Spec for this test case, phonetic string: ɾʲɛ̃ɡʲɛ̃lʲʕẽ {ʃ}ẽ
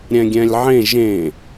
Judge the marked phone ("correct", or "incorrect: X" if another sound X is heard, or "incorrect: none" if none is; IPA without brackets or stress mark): incorrect: ʒ